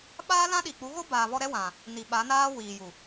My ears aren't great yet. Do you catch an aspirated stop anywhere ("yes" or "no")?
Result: no